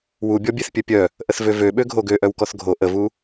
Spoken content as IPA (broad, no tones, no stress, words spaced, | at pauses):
wubʲɔbʲeθpʲœ pʲœ | ʔəθvøvøɓø ɡʱoɡøʔœw kɔθɡʱo ʔəvu